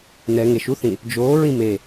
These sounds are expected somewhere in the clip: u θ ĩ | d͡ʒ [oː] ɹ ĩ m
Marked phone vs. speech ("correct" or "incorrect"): correct